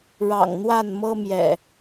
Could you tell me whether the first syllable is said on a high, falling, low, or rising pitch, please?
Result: low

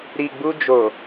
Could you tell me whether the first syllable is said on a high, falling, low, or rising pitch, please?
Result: low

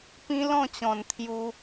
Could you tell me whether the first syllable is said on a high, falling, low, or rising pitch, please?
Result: high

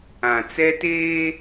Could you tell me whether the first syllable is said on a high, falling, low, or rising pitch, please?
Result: low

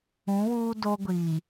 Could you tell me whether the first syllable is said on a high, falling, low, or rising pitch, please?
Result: rising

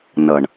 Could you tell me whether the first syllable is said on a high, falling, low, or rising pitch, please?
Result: low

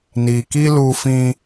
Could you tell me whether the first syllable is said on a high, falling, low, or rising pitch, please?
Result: low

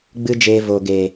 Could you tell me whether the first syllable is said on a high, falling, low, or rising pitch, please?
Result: high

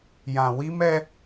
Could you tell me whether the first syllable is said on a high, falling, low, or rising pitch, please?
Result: low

